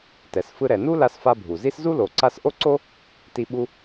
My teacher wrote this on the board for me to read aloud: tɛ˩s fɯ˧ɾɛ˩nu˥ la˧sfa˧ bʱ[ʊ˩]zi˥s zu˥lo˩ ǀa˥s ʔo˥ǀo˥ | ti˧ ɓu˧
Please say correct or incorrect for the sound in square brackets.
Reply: incorrect: u˩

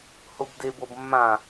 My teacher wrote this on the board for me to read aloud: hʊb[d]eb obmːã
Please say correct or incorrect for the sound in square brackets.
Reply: correct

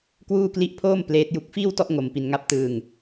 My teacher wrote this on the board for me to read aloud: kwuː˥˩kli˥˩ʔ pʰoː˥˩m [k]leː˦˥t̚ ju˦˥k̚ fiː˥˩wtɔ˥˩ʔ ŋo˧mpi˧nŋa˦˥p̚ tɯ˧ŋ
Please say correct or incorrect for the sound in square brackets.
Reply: incorrect: p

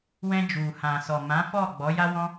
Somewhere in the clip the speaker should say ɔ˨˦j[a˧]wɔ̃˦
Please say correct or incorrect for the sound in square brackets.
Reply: incorrect: a˦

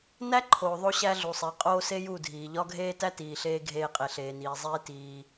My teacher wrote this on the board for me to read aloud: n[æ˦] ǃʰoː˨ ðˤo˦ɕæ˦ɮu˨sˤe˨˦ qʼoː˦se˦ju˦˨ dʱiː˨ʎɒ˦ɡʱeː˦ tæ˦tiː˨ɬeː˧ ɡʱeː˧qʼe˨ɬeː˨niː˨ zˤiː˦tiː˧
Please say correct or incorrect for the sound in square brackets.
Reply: correct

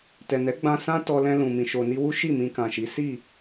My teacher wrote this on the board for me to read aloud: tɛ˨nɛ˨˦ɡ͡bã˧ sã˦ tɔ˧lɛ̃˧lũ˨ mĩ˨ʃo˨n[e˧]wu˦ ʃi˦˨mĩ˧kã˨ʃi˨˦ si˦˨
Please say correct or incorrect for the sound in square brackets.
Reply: incorrect: i˧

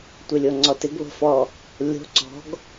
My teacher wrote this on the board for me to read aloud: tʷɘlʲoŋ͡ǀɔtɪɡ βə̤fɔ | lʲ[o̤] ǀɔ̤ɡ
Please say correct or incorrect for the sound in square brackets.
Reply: correct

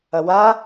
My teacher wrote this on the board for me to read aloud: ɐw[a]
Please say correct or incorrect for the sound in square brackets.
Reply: correct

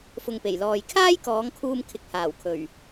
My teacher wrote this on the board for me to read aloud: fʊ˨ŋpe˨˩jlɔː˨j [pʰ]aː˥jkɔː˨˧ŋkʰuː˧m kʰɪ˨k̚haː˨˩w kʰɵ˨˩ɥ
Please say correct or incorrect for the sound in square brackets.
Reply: incorrect: kʰ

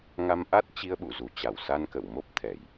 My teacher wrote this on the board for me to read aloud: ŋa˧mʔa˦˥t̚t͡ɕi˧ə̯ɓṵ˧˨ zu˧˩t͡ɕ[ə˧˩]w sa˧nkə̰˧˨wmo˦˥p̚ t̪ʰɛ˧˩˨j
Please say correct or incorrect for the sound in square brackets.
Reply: incorrect: a˧˩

